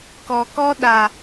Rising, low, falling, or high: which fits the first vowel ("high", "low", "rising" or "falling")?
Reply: low